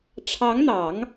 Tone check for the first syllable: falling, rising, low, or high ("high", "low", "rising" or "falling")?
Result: rising